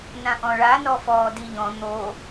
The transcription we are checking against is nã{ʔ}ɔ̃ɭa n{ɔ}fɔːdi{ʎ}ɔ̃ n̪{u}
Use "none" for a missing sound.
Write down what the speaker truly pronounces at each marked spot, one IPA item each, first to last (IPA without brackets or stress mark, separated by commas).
ʔ, ɔ, ʎ, o